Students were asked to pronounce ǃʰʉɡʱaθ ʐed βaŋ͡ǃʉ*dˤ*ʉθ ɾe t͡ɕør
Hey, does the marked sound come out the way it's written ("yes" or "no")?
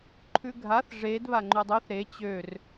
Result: yes